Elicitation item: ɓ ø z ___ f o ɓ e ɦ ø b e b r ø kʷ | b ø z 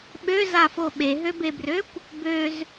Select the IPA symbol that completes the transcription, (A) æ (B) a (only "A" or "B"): B